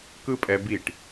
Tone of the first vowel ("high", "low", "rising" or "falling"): high